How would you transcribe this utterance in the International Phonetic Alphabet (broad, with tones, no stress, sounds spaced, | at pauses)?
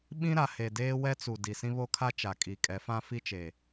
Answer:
ɓ ĩ˦ ɾ a˨ h e˨ d eː˦ w ɛ˦ t͡s u˨ d i˨ s ĩ˦ β o˦ kʰ a˦ t͡ʃ a˨ kʼ i˨ kʼ ɛ˨˦ f ã˦ f i˦ t͡ʃ e˨